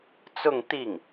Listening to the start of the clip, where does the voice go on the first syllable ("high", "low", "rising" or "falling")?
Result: falling